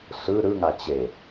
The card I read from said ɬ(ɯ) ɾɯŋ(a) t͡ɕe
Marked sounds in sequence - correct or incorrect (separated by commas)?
correct, correct